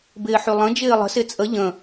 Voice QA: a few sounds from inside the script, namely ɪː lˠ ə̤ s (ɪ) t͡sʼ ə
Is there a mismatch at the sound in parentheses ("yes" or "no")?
no